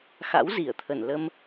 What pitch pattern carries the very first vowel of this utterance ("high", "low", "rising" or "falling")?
rising